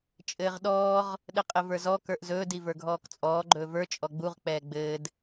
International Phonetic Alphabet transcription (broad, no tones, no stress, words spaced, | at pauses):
t͡ʃʼɘːʁɗɔːʁ | ɗɘqʼɘvə˞zɔ kə˞ʔzɵː divə˞ɡʱɔːkt͡sʼɔː ɡ͡ǃɵːvə˞ t͡ʃʼɔɡ͡buʁ k͡pɛːɡ͡bɘːd